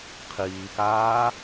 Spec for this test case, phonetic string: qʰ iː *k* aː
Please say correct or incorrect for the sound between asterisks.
correct